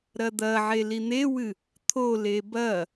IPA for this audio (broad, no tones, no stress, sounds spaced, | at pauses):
ɾ ɐ d̪ ɐ ʕ e l i n̪ e w ɨ | t̪ʰ o l e b ɐ